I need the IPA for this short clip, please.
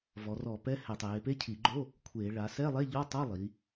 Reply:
v ɔ˩˧ r ɔ˧˩˧ p ɛ˧˥˧ h ɛ˧˩˧ tˤ eː˩˧ p e˧˥˧ cʰ i˧˩˧ ɡ͡ǃ o˧˥˧ | kʷʰ eː˧˩˧ ɭ a˩˧ s ɛ˧˥˧ lˠ e˧˥˧ ʎ ɔ˧˥˧ tˤ ɤ˧˥˧ lˠ i˩˧

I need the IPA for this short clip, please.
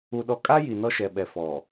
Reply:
u˨ ɗ ɔ˨ kʼ a˦ j i˨ n ɔ˦ ʃ ɛ˨ ɓ ɛ˨ f ɔ˨

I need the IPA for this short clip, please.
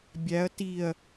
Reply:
bʲ æ ɐ̯ t i ɐ̯

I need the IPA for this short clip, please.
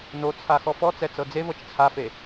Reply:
n o t͡sʰ a x ɔ f ɔ t͡s ɛ t͡s ɤ d͡z e v ɤ t͡ʃ t͡sʰ a f e

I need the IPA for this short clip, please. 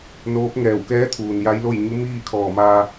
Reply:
n oː˧˥ p̚ ŋ ɛː˧˩ w k ɛː˧˥ t̪ʰ uː˩ n j a˧˥ j l o˥˨ j ɲ u˧˥ m iː˥˨ kʰ ɔː˧˩ m aː˧

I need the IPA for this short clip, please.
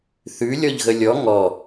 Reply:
θ ʉ lʲ ɔ ʎ ɣ ə lʲ ɔ ŋ ɔ

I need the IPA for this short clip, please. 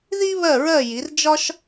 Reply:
ð i˥ β ɜ˥˩ ɹ ɜ˥˩ j i˩˥ r d͡ʒ ɒ˥ ʃ

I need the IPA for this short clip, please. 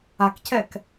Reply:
a k c ɛ k

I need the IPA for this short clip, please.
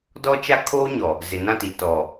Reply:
d ɔ˦ t͡ʃ a˦ kʰ oː˦ ɲ ɔ˨ | z ɪ˨ n ã˦˨ t i˨ t ɔ˨

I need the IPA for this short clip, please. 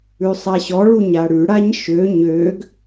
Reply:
ʉ sˤ a ɕ ɔ ɭ u ɲ a ɽ ʉ ɽ a ɲ ʃ ø ɲ ø ɡ

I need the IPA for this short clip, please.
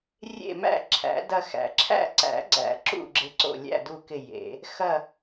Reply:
rʲ ḛ˦˨ m æ̰˦˨ ǁʰ æ̰˨˩˦ d ɐ˦˨ x æ̰˨˩˦ ǁʰ æ̰˦˨ ǀ æ̰˨˩˦ ɡ͡ǀ æ̰˨˩˦ ǁ ṵ˦˨ ɡ͡ǁ ɪ˦˨ ǀ o̰˦˨ lʲ æ̰˦˨ d u˦˨ k ɪ˦˨ j ḛ˨˩˦ | x ɐ˦˨

